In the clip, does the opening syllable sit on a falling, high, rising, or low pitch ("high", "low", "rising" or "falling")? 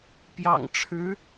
low